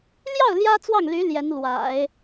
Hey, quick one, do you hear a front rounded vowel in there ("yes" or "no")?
yes